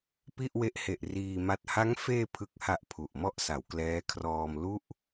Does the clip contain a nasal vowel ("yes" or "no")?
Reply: no